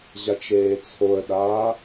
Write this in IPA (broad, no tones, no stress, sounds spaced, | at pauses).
ʑ a t͡ʃ eː t͡sʰ o ə̯ ɗ aː